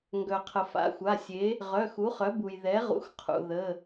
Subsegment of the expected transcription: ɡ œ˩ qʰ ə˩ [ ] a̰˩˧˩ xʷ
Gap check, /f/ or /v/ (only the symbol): f